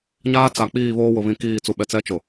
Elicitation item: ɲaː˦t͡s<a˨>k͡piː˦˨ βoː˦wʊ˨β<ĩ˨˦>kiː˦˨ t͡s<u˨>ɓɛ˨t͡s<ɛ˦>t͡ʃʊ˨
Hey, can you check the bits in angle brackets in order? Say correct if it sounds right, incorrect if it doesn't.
correct, correct, correct, correct

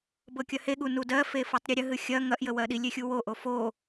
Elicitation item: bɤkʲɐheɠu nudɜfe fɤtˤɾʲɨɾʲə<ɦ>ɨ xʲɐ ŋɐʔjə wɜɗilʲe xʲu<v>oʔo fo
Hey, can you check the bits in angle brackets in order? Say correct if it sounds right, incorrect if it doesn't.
correct, incorrect: w

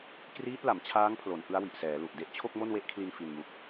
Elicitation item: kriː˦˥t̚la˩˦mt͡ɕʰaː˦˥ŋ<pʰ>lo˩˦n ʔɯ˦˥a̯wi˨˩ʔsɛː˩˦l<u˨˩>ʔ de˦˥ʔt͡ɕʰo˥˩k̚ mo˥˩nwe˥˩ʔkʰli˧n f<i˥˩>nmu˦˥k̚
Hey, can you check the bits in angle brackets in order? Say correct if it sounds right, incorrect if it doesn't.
correct, correct, incorrect: i˧

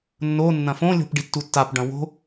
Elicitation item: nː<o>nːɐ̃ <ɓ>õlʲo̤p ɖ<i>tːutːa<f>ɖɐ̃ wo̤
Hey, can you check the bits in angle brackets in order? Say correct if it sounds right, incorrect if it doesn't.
correct, incorrect: f, correct, incorrect: p

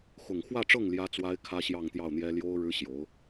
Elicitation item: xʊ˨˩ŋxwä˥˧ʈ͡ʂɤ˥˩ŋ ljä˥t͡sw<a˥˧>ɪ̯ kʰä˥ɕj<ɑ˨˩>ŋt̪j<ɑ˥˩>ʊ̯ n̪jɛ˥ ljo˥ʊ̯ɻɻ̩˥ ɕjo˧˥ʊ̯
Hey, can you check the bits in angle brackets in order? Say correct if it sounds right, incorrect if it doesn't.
incorrect: a˥, incorrect: ɑ˥˧, correct

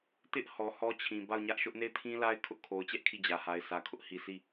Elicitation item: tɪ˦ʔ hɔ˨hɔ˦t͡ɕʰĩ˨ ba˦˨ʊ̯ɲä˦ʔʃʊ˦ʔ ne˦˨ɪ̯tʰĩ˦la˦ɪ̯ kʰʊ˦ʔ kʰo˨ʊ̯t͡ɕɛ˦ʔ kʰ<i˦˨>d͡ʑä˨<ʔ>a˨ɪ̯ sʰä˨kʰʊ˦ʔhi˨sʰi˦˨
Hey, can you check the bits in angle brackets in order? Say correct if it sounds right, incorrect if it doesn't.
correct, incorrect: h

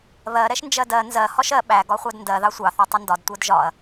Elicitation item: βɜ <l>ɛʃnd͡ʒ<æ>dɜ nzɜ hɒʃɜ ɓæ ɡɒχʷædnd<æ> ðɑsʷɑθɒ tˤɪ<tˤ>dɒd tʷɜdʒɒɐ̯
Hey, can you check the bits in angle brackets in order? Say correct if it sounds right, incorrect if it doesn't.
incorrect: ɾ, incorrect: ɜ, incorrect: ɜ, incorrect: n

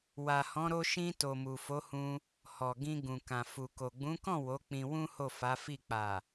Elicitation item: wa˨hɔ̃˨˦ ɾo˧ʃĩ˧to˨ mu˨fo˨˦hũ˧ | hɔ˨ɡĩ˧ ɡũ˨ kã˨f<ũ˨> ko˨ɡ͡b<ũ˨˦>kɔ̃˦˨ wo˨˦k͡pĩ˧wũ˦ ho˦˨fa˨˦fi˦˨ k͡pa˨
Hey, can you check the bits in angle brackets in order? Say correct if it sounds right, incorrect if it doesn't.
incorrect: u˨, correct

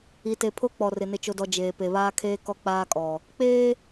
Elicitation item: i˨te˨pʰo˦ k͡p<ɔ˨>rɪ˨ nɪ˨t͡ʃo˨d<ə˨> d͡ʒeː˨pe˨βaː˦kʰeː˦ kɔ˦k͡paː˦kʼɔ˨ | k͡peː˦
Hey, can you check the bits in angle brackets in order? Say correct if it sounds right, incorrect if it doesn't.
correct, incorrect: ɔ˨

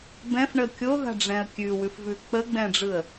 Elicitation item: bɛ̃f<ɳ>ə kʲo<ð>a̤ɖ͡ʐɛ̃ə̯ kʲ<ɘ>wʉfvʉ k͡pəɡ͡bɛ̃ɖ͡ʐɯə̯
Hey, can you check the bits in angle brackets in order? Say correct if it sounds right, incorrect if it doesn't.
correct, correct, incorrect: ʉ

